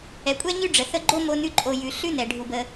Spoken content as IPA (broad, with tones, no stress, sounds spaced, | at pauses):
ɛ˩ kʷʼ ɛ˥ ɲ ʉ˥ ɖ͡ʐ ə˩ θ ə˦ ɡ͡ǃ o˥ m o˦ n ʉ˦ ǃʼ o˨ j ʉ˩ ɬ ʉ˥ n ɛ˩ ɖʱ u˨ b ə˦